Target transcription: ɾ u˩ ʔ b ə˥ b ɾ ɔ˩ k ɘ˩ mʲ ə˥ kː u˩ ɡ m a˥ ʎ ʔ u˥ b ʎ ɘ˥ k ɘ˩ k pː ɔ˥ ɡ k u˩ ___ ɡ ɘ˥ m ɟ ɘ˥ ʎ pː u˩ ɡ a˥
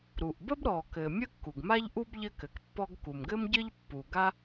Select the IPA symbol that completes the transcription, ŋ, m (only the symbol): m